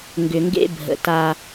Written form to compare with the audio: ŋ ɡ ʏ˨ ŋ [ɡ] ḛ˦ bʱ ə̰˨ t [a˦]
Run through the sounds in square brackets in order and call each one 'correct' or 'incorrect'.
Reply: correct, correct

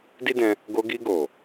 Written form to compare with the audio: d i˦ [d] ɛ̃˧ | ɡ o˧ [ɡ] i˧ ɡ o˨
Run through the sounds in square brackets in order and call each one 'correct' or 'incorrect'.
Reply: correct, correct

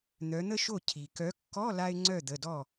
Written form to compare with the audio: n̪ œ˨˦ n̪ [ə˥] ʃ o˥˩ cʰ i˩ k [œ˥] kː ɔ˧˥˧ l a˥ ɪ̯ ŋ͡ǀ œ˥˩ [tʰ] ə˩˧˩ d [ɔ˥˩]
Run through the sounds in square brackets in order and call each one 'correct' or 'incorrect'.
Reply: correct, incorrect: œ˨˦, incorrect: d̪, correct

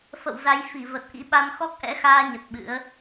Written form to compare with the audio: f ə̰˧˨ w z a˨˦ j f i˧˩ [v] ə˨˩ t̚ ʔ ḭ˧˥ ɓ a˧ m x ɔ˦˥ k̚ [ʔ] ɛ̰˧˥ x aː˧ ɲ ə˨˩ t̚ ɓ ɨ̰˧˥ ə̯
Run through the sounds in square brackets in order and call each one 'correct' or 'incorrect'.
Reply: correct, correct

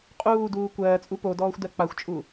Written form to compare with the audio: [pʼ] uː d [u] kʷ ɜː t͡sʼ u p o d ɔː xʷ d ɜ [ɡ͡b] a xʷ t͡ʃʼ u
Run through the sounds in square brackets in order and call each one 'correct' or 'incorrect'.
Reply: incorrect: qʼ, incorrect: uː, incorrect: k͡p

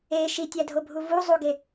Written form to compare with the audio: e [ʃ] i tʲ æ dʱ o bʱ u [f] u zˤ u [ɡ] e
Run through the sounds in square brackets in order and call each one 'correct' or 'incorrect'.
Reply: correct, incorrect: v, correct

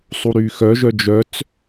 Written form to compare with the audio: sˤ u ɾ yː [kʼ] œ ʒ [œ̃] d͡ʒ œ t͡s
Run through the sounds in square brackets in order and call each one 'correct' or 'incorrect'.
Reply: incorrect: x, incorrect: œ

